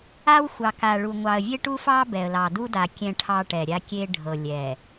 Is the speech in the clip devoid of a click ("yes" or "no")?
yes